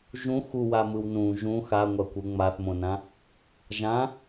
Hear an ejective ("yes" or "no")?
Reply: no